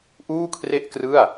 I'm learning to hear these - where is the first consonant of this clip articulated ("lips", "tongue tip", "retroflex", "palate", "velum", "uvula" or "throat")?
throat